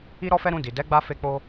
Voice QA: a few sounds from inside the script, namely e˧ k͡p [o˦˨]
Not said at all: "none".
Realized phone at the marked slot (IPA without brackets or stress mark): o˧